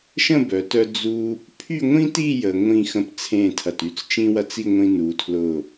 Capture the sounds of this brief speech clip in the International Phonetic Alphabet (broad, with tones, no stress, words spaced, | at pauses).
ʃə̃˥˧bœ˩˧tœ˧ d͡zu˧ | pʰy˥˧ŋʷĩ˥ti˥˧ jə˧ ŋʷĩ˥˧ xə̃˥˧pt͡sʰẽ˥˧tʰɐ˧˩ty˥t͡s t͡ʃĩ˥wɐ˥t͡s i˥˧ŋʷĩ˧ nu˩˧tʰlʊ˧˩